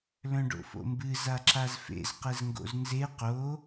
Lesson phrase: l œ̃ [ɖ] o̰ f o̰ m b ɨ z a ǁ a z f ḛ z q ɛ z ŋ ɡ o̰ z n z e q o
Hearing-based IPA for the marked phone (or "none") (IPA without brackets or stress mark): ɖ